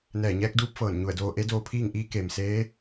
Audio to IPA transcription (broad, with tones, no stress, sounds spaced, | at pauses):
n ɛː˧˩ ɲ ɛː˧˥ k̚ d uː˧˥ p̚ f ɤː˧˩ n ɲ u˧˩ ə̯ d oː˧ ʔ e˧˥ d oː˧ pʰ iː˥˨ ŋ ʔ iː˧˥ k e˩ m s eː˧˥